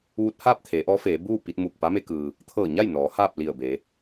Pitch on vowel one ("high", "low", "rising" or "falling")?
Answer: rising